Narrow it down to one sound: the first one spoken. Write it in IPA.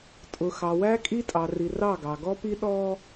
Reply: tʼ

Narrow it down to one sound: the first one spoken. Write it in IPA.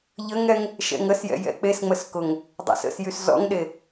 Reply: ʎ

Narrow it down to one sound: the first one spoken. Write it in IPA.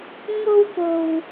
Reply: ŋ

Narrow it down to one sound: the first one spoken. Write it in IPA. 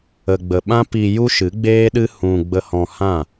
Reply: ə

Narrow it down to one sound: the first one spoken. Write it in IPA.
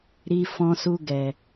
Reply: ɾ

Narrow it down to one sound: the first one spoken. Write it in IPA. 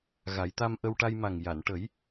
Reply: ɣ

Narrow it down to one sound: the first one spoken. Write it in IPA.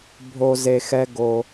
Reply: bʱ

